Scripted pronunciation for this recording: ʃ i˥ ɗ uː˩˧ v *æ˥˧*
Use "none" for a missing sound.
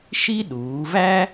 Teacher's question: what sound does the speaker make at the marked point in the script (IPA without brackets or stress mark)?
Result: æ˥